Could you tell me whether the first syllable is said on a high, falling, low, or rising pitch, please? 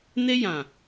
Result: high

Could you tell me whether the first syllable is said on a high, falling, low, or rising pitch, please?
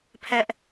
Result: high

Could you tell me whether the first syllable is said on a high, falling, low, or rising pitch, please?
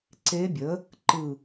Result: rising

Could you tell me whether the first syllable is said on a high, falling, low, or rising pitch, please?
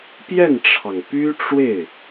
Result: falling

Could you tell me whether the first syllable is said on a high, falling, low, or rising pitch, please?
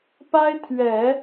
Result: high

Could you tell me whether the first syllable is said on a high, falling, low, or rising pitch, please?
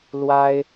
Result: high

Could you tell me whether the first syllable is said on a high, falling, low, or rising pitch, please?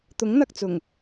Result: rising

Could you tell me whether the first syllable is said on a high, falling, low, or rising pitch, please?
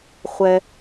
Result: high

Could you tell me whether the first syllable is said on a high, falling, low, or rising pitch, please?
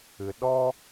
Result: low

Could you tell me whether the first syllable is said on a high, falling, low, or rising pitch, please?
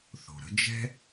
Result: low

